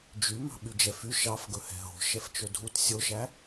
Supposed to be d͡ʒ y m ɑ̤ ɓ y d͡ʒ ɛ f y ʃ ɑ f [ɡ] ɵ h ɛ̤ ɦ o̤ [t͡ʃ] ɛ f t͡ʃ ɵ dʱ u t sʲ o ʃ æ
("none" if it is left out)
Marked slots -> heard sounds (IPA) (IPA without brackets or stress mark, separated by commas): ɡ, ʃ